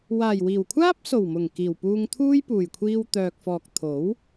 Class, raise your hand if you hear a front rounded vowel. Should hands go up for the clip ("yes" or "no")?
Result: yes